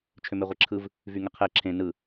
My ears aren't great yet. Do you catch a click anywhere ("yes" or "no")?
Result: yes